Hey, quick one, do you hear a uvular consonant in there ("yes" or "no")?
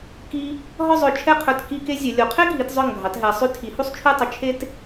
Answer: yes